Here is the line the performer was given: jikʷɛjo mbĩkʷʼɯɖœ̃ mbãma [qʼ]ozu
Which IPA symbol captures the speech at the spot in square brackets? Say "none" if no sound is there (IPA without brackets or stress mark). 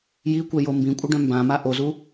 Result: ʔ